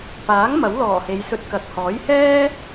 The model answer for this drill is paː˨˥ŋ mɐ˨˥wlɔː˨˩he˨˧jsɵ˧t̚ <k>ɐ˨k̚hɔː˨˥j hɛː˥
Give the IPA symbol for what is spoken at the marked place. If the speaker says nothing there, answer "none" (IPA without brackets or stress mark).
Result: k